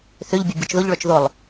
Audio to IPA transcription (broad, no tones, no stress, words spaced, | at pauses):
θʏʎbʲʊ bʲʊt͡ʃðʊʎɭœt͡ʃ ðʊlˠ